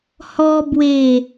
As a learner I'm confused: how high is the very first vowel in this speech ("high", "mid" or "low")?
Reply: mid